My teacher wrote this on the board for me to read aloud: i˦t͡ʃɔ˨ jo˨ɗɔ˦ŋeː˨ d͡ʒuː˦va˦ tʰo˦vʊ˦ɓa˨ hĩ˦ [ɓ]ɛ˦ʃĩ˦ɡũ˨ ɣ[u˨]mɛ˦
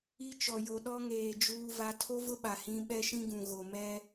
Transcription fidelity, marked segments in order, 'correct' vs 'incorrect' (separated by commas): correct, incorrect